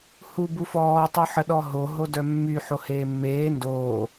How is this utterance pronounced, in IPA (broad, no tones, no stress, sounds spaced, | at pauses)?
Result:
h u b u f ɔː tˤ u ħ ə ɗ ɔ ɦ o ɦ o d œ mː y ħ o h eː mː eː n d oː